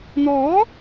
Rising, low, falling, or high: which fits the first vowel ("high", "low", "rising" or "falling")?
rising